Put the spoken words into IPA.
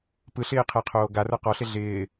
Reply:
p ɯ ɬ ɪː qʰ e qʰ oː ɡ a r ə˞ q ɔ ɬ ɪ ɮ ɪː

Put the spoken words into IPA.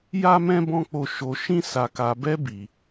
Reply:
j a˦ m ɛ̃˦ b ɔ̃˦ k͡p o˦˨ ʃ o˧ ʃ ĩ˦ s a˧ k a˧ b ɛ˦ b i˧

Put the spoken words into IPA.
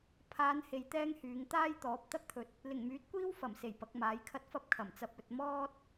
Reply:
pʰ aː˨˧ n h e˧ j t̪ ɛː˥ ŋ h yː˨˧ ŋ t̪ aː˥ j t̪ ɔː˨˥ p̚ t̪ ɐ˥ k̚ t̪ʰ ɵ˨ t̚ | l ɪ˨˩ ŋ m yː˨˥ t̚ kʷ iː˥ w f ɐ˨˩ m s e˨˩ j p ɐ˨˥ k̚ m aː˨˥ j kʰ ɐ˥ t̚ f ɐ˥ p̚ kʰ ɐ˨˩ m t͡s ɐ˧ p̚ ɵ˨ t̚ m ɔː˥ t̚

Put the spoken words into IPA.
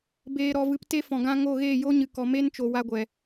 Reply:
b eː˨ ɾ ɔ˨ v ɨ˨ p t e˦ f ɔ̃˨ ɡ ã˧ ŋ o˦˨ ɣ eː˦˨ j o˦ ɲ ɨ˨ k ɔ˨ m e˦ n t͡ʃ o˨ w a˧ ɡʷ ɛ˨

